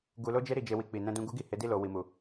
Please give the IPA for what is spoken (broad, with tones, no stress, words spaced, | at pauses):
ɡu˧lo˦d͡ʒe˦ ɾi˦˨d͡ʒe˧wi˧ k͡pi˨nɛ̃˧dũ˧ ɡu˦ɡi˦˨ he˨˦di˦˨lo˨ wi˨mu˨